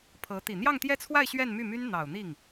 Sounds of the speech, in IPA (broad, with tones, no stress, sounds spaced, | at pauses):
pʰ ɤ˧˥ t̪ i˨˩ n̪ j ɑ˥˧ ŋ t̪ j ɛ˥˧ t͡sʰ w a˥˧ ɪ̯ ɕ ɥ ɛ˥˧ n m y˥˩ m y˥ n n̪ ɑ˨˩ ʊ̯ n̪ i˥˩ ŋ